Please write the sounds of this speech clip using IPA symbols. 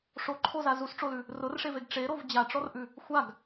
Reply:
ʂ o ǃʰ o z a z u s ʈ͡ʂ o l ʉ | r ʊ r ʂ e v e ɡ ʈ͡ʂ e ɾ o v d͡ʑ a ʈ͡ʂ ɔ r ʔ ʉ | xʷ a ɡ

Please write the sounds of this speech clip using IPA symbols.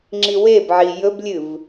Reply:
ŋ͡ǁ i w e b ʕ i j ɵ b lʲ ɨ v

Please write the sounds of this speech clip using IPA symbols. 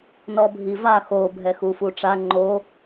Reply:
n ɔ bʱ i v a x o bʱ ɛ x u f u ʈ͡ʂ a ŋ͡ǃ o

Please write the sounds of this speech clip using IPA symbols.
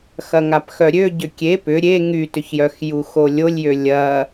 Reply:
x ɐ ŋ a p x œ ɾʲ ø ɟ ʏ kʲ e p ʏ ɾʲ e ŋ y t ʏ ç j œ x j u x o lʲ o lʲ j ø lʲ ɐ

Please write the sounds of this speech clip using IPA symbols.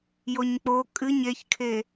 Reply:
j o ɲ k͡p o kʼ ɨ ɲ e ç kʰ e

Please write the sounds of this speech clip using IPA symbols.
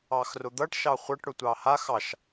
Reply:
ɑ x r ʊ d̪ ʌ ʈ ʃ ɑ χʷ ʌ ʈ ɽ ʊ tʷ ɑ h a x ɑ ʃ

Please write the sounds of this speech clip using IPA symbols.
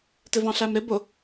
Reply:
t ɪ v ɑ̃ ɬ æ m ɾ ɪ b ʊ

